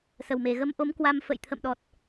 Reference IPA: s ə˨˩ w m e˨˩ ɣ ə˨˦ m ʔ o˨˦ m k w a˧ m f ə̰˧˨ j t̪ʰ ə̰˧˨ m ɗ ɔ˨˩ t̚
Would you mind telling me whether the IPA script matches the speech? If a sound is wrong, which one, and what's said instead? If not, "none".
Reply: none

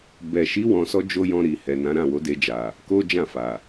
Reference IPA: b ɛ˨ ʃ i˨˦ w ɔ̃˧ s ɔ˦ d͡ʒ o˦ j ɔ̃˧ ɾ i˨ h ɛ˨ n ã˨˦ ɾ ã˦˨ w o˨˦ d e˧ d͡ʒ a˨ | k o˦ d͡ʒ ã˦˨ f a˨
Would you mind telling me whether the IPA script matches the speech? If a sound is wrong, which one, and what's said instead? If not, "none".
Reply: none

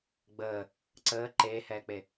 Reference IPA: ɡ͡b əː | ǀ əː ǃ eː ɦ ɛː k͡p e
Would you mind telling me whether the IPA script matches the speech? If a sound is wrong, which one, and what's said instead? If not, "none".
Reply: ɦ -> h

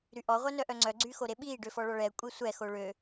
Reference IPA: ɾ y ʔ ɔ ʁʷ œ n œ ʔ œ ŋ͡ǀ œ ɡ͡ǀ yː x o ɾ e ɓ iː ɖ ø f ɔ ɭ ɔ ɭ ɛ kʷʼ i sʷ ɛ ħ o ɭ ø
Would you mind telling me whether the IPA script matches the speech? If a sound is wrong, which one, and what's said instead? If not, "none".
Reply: ħ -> x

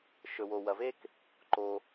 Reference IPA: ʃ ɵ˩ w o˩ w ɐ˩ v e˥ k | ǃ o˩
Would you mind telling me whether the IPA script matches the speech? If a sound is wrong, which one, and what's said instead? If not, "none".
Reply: none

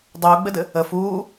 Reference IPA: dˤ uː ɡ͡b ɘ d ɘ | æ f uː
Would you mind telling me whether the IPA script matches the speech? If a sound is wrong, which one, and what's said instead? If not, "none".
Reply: æ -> ə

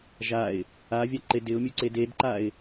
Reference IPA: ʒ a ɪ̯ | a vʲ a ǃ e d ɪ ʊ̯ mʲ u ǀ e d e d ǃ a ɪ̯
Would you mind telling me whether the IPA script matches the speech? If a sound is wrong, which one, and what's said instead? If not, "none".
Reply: none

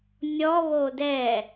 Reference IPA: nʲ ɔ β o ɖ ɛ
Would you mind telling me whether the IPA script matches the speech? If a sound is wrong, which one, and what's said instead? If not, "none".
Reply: ɖ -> d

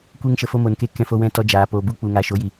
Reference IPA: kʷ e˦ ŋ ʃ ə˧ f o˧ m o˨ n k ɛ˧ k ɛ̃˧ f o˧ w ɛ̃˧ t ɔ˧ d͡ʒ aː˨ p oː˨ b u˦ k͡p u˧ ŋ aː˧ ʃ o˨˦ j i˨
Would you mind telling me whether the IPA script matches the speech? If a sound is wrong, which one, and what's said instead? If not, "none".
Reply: ɛ˧ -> e˧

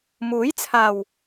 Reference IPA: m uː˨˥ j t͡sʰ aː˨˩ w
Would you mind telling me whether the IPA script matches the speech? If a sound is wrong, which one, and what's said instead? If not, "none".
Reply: none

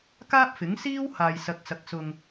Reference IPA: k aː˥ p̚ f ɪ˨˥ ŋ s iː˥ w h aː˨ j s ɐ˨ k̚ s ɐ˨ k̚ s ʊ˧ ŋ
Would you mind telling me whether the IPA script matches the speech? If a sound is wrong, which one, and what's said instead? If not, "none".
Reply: none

